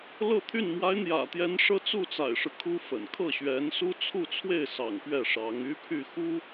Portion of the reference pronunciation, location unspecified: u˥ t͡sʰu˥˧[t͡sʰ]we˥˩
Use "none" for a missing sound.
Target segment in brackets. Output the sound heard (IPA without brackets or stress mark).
t͡sʰ